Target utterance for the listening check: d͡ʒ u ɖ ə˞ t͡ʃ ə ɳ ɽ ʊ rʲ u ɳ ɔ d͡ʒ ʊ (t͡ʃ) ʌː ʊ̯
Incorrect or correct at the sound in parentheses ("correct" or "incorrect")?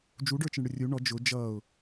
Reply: incorrect